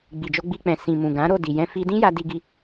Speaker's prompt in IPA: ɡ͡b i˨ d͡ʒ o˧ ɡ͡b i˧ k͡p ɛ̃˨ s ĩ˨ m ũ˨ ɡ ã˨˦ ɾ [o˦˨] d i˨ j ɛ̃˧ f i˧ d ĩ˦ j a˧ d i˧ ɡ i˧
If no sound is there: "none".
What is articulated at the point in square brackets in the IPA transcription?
o˦˨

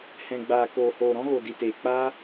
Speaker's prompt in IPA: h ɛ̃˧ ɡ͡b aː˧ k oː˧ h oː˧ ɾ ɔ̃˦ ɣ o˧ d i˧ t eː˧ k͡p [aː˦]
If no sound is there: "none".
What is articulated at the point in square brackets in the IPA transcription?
aː˦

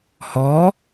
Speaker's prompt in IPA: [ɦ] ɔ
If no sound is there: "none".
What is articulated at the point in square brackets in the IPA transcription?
h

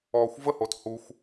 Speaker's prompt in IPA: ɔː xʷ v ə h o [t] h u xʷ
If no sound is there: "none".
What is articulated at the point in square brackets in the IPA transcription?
t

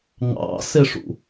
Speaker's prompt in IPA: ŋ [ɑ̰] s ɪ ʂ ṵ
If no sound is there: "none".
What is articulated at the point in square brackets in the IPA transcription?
ɑ̰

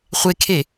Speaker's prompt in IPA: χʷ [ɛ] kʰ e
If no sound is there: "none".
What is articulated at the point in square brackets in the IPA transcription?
e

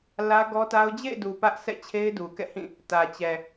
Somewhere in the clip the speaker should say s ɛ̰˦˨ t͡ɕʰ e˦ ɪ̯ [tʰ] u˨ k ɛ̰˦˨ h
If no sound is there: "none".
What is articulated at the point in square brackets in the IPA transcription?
d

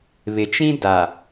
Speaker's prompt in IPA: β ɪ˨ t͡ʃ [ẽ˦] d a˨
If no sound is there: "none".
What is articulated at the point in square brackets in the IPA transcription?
ĩ˦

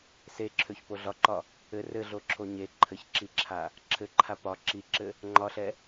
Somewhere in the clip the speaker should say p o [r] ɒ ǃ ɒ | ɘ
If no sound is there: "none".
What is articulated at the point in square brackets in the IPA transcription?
ɮ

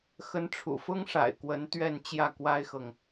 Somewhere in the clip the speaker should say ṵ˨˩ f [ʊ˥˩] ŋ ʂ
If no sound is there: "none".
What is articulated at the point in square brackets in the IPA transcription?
ʊ˥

